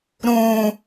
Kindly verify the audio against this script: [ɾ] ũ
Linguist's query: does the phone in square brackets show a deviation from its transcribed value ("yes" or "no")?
no